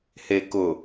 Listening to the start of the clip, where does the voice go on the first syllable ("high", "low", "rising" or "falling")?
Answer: low